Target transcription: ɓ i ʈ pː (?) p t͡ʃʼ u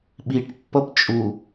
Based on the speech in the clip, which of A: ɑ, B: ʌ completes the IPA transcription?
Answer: B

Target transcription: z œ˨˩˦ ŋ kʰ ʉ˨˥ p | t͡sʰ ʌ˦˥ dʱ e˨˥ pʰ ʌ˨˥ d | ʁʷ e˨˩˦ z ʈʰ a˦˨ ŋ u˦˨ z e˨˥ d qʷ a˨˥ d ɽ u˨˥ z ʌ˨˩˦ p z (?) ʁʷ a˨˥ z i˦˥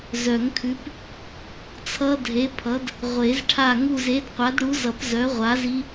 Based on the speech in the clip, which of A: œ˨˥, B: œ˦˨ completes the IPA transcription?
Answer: A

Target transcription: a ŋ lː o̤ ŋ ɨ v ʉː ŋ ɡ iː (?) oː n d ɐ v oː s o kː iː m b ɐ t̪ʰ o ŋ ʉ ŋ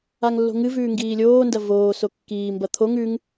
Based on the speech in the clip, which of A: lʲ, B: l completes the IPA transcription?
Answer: A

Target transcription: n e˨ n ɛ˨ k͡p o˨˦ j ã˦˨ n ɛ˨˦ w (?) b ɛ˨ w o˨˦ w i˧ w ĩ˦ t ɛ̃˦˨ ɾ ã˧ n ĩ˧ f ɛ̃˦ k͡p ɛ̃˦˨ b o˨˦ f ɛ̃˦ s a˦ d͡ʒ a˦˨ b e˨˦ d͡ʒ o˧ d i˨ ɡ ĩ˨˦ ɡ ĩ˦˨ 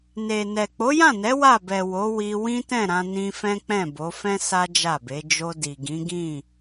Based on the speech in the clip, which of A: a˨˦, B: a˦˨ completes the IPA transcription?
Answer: B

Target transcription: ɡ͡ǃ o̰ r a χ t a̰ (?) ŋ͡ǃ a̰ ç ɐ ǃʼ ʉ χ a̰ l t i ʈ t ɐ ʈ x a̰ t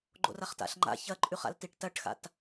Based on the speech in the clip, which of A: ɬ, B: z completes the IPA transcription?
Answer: A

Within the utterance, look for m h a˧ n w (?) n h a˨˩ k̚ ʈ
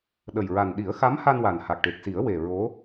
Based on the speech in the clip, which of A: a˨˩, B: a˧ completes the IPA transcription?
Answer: A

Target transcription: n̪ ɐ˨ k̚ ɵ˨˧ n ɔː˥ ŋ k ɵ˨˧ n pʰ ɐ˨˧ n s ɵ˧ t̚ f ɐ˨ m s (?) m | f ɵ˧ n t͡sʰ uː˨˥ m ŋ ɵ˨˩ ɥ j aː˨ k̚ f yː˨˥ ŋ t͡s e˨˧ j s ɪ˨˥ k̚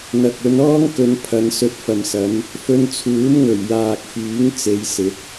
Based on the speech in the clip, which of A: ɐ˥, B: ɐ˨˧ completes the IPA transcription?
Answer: B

